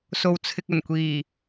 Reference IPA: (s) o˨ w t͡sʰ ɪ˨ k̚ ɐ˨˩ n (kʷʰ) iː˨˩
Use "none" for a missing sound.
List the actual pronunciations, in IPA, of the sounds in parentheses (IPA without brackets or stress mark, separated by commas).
s, kʷ